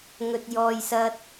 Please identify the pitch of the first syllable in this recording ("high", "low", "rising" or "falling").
low